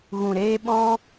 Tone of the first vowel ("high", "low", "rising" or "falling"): low